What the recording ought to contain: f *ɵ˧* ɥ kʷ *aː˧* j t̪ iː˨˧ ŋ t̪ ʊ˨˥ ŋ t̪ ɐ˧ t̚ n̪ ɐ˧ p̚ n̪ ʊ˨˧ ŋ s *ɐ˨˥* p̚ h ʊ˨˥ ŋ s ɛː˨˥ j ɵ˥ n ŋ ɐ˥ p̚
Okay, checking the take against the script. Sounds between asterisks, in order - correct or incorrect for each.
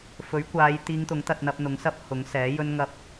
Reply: incorrect, incorrect, incorrect

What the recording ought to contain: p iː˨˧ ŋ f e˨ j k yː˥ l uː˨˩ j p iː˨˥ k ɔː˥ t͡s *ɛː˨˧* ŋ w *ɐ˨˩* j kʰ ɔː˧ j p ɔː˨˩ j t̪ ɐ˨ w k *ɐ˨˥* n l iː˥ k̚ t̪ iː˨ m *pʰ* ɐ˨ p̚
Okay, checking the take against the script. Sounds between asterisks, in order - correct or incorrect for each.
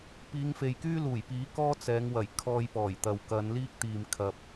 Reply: correct, correct, incorrect, incorrect

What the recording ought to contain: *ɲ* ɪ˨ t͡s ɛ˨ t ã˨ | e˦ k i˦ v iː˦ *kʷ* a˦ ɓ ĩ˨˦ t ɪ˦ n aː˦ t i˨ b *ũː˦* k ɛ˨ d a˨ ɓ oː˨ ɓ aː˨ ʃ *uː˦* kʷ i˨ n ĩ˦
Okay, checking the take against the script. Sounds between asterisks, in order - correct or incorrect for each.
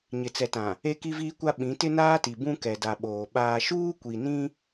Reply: correct, correct, incorrect, correct

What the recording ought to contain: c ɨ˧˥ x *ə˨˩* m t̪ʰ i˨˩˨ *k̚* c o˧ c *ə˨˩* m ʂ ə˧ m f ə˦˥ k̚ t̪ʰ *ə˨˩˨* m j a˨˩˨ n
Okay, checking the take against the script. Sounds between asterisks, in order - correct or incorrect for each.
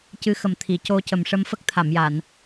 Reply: correct, incorrect, correct, incorrect

